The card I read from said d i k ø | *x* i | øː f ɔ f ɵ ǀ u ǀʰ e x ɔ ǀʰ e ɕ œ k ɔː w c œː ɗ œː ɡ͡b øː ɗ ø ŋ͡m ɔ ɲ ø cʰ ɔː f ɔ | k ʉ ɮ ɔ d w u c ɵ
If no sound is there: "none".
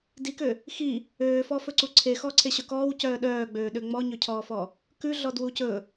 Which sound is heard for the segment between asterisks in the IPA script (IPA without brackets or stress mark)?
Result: x